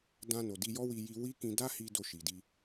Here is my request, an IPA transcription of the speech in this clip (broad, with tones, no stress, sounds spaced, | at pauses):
d ã˧ n o˨ d i˧ j ɔ˦ w i˧ j i˧ w i˦ k ĩ˧ d a˦ h i˧ d o˧ ʃ i˨ d i˧